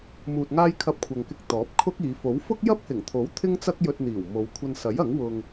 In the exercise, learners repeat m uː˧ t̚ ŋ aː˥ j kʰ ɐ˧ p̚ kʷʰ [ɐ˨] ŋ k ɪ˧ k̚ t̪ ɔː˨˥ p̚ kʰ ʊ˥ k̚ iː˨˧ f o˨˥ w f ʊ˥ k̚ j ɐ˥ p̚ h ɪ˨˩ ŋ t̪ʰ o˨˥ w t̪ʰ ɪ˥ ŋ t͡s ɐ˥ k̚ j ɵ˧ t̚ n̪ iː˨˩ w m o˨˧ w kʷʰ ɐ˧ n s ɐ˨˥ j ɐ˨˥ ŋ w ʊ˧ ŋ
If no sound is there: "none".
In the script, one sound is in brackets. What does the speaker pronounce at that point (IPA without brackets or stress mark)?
ɐ˨